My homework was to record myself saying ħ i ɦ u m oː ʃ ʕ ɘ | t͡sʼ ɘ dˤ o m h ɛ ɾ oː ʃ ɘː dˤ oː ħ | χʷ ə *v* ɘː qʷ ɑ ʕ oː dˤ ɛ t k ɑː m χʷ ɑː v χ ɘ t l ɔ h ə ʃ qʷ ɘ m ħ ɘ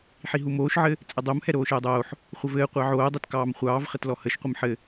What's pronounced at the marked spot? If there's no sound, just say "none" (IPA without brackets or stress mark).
v